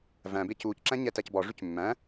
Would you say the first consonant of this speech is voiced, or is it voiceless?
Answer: voiced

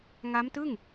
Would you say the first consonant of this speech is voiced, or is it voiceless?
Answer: voiced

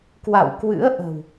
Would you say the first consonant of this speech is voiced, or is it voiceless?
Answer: voiceless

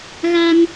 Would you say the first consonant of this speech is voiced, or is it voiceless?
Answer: voiced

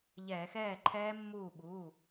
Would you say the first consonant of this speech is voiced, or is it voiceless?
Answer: voiced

